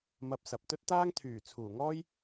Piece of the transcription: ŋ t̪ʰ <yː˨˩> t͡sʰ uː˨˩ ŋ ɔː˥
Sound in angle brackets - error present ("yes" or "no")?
no